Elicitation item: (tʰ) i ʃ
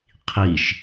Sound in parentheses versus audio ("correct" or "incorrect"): incorrect